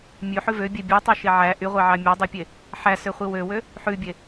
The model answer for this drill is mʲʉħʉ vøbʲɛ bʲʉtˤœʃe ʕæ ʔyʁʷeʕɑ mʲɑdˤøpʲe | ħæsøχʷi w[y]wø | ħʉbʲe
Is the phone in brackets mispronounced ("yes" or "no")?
yes